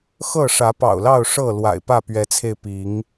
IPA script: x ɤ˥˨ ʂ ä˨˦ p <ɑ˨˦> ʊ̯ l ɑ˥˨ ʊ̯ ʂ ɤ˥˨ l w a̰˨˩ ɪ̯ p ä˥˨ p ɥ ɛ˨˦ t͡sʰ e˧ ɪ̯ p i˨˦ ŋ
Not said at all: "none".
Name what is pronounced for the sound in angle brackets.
ɑ̰˨˩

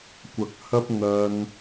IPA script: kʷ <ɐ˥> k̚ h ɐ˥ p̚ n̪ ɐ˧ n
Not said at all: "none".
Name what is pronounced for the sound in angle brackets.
ɐ˨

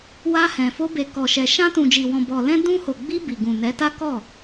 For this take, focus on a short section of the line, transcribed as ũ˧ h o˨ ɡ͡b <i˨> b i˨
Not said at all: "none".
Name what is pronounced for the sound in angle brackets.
i˧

